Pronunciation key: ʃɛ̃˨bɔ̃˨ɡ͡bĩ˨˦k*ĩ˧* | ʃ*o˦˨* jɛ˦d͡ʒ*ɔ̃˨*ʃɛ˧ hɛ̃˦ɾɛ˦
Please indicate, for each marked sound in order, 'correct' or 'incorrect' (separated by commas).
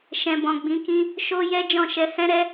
incorrect, incorrect, incorrect